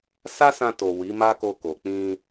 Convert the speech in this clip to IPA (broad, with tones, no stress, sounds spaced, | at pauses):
s a˦ s ã˧ t o˨ w i˨˦ m a˦ k o˧ k o˨ k͡p ĩ˧